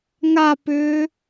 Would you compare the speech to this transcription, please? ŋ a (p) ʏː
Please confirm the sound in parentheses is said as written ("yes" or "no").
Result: yes